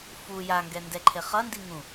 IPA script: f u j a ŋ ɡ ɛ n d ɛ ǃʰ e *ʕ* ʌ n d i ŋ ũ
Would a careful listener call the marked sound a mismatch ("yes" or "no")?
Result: yes